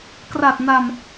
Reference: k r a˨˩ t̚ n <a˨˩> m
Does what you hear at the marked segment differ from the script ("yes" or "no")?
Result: no